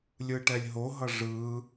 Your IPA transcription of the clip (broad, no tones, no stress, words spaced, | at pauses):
lʲɯʈɛlʲɦoɦʌ ʐɯ